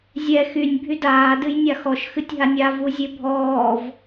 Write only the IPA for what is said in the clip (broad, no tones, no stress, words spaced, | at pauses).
zʲɛ xynʲ bʱydaː dɨjnʲaxɔʃ xɨtʲɦanʲa vuzʲebʱɔːv